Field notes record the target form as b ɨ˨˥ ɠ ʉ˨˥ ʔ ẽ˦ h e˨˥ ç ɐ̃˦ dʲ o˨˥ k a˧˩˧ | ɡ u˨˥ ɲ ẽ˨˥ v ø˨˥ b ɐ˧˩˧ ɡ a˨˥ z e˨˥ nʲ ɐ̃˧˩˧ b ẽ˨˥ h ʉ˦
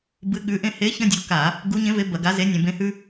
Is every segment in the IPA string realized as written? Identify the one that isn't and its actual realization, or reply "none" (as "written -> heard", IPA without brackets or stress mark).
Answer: ø˨˥ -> e˨˥